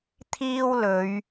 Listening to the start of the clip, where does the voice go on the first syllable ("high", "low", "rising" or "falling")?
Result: high